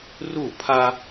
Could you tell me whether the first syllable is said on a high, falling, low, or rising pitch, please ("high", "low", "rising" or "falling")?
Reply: falling